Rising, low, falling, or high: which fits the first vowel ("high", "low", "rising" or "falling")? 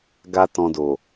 high